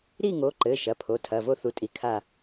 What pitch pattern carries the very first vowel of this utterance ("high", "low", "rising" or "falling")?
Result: falling